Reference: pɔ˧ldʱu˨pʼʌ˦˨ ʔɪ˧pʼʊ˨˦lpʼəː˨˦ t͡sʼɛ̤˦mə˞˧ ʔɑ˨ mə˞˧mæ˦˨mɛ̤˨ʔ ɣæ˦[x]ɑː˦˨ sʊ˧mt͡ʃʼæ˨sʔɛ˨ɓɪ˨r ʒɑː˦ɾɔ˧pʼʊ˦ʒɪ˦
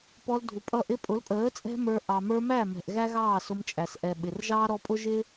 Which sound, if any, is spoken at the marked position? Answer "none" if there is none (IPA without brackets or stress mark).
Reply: ɣ